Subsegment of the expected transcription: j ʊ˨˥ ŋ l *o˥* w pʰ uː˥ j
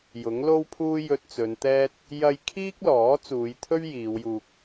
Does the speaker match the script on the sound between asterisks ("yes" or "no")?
yes